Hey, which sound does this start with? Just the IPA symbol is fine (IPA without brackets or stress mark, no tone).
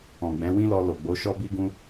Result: ɔ̃